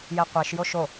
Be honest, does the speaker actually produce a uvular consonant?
yes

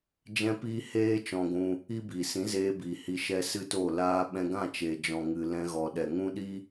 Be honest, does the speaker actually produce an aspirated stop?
no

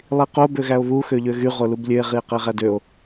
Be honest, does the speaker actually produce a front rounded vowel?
yes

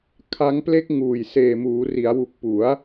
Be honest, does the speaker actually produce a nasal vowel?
no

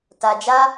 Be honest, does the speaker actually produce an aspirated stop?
no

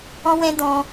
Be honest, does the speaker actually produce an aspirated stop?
no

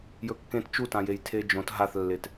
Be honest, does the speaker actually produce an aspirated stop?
yes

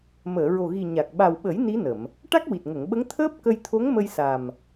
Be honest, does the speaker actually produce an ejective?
no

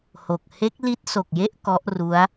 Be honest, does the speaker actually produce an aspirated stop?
no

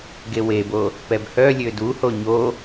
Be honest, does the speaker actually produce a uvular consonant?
no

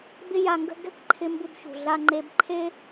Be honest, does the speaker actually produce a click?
yes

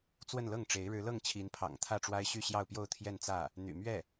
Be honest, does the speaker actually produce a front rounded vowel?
yes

